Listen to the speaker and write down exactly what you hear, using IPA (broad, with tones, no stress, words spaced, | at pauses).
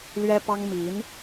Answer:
lɥɛ˥pɑ˥ŋ mi˧˥n